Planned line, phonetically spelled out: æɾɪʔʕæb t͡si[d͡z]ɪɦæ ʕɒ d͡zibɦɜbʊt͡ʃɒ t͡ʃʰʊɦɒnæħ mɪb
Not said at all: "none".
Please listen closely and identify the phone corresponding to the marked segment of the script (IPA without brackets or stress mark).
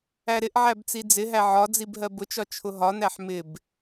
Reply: d͡z